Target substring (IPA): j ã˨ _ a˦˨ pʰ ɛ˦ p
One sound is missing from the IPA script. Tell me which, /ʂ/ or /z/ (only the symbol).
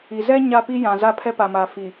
z